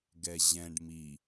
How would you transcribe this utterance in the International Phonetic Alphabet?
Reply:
ɡ ɛ ʑ ɛ̃ ɖ m i

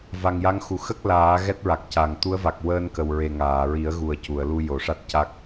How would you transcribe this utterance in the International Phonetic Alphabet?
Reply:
v a˨˩ ŋ j a˧˥ ŋ x u˨˩ x ə˦˥ k̚ l aː˨˩˦ ɣ ɛ˦˥ t̚ ɹ a˨˩ k̚ c a˨˩˨ ŋ t̪ u˧˥ ə̯ v a˨˩ k̚ w əː˧ n k ə˨˩ w ɹ e˨˩ ŋ aː˨˩˨ ɹ i˨˩˦ ə̯ ɣ u˨˩ ə̯ c u˨˩˨ ə̯ l u˧ j o˨˩˨ ʂ a˦˥ t̚ c a˦˥ k̚

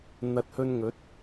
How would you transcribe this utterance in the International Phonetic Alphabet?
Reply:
n̪ ɐ˨˥ t̚ h ɵ˧ n ŋ ɵ˨˥ t̚

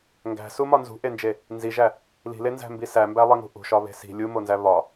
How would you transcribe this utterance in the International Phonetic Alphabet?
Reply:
ŋ ɡ æ̤ s u m ɒ n z ṳ ʔ e n d͡ʒ e | n z i ʒ æ | l i̤ l e n z æ̤ m b i s æ m b æ lˠ e ŋ ṳ ʔ ṳ ʃ ɒ β e̤ s i̤ lʲ u m o n z æ β ɒ

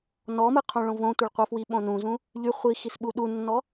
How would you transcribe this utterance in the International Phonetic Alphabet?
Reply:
n ɔ m ɯ qʰ õ ɭ õ v õ tʷ ə ɭ qʷ ə˞ f w i ɓ õ n ũ z ũ | ʎ y χʷ i x i s ɓ u ɗ u nː ɔ

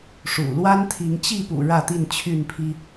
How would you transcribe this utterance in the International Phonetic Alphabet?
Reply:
ʂ ṵ˨˩ l w a˦ n t̪ʰ i˨˦ ŋ t͡ɕ i˥˨ p ṵ˨˩ ɻ ä˥˨ t̪ i˥˨ n t͡ɕʰ y˥˨ n pʰ i˦

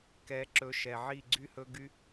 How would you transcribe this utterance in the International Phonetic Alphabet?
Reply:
k ɛ˨˦ ǁ ɵ˨˦ ʃ ɛ˨ ʕ i˦˨ ɡ͡ǀ y˦ h ɵ˦ ɡ y˦

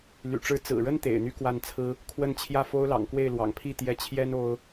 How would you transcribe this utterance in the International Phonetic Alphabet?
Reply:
l y̰˨˩ ʈ͡ʂ ɻ̩˧˥ t͡s ɹ̩˨˩ ɻ ə˥ n t̪ ḛ˨˩ ɪ̯ n̪ y˥˧ k w a˥˩ n t͡sʰ ɹ̩˥ | kʰ w ə˥˧ n t͡ɕʰ j ä˥˩ f o˥ ʊ̯ l ɑ̰˨˩ ŋ k w e˥˩ ɪ̯ l w ɑ̰˨˩ ŋ pʰ i˥˩ t̪ j ɛ˧˥ t͡ɕʰ j ɛ˥ n o˥ ʊ̯

